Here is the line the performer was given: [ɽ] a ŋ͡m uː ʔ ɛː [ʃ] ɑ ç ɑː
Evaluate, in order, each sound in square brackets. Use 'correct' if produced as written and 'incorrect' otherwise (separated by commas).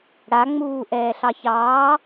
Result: correct, incorrect